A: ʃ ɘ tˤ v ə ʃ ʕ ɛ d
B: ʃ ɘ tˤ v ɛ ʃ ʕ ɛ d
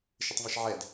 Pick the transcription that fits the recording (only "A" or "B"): B